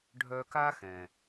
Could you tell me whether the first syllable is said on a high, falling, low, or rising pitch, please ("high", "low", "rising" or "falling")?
high